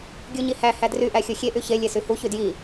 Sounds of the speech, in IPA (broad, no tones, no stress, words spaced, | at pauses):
ɡʲuɲihæ hædry ʔæxʲoxʲe ʔyçe lʲesyhu çydji